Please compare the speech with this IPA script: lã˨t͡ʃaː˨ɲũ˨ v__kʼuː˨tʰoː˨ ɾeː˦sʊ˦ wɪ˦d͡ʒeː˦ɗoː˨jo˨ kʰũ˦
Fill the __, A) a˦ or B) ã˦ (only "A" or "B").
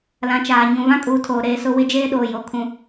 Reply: B